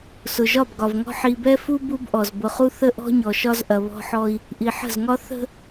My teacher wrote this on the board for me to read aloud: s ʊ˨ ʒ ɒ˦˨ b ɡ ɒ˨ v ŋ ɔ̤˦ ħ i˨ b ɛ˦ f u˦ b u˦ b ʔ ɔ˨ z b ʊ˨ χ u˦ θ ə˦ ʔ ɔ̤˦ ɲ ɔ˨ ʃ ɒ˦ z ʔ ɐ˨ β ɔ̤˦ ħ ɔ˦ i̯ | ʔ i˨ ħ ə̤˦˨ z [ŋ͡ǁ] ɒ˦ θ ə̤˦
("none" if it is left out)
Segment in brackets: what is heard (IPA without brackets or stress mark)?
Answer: ŋ